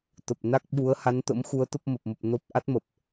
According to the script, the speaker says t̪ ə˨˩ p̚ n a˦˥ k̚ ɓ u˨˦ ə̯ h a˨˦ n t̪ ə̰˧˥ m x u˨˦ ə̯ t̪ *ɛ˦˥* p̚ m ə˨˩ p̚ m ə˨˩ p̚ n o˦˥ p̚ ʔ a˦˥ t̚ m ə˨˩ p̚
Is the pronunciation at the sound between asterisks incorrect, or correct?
incorrect